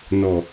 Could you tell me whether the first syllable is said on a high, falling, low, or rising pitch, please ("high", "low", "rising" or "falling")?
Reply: low